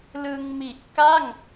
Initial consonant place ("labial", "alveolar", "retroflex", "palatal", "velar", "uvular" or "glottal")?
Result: alveolar